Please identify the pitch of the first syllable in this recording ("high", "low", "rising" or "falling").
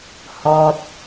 low